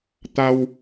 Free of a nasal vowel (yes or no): yes